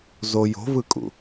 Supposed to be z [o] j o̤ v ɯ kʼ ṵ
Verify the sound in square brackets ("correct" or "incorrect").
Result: correct